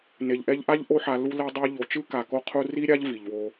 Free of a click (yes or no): yes